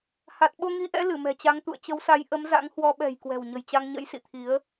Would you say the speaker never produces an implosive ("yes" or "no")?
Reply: no